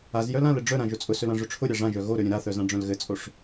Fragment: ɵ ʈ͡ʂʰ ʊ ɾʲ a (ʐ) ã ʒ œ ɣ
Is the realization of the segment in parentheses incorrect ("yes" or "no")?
no